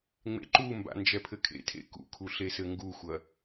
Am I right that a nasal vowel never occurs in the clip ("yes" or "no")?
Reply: yes